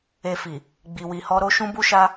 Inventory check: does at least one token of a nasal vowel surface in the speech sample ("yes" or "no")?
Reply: yes